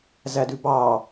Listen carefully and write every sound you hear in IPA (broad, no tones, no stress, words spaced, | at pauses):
zædʉbɑ